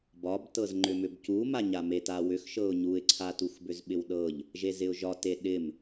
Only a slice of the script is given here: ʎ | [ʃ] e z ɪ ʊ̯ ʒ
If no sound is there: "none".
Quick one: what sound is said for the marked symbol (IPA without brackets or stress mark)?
ʒ